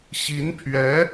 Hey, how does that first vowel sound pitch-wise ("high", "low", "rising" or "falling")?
rising